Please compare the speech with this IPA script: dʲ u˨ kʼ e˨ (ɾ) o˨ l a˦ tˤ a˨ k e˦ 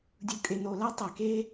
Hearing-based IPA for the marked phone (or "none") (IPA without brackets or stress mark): n